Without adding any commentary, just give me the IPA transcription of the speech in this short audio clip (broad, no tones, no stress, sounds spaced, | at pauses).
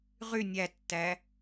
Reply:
ʁ y nʲ æ tː æ